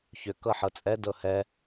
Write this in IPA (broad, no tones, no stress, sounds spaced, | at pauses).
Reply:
ç ʏ k ɤ ħ ɤ t͡sʼ ɛ d ɤ h ɛ